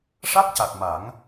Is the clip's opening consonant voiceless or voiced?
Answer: voiceless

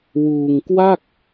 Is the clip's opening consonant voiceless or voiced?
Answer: voiced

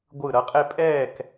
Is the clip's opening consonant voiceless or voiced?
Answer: voiced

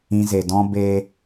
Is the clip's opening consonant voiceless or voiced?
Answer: voiced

